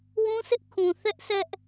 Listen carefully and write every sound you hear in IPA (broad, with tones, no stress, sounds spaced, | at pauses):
w ũ˦ s ɪ˦ ʔ kʰ ũ˨ θ ɛ˦ ʔ s ɛ˦ ʔ